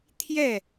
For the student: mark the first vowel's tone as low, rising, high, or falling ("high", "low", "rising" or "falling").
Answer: falling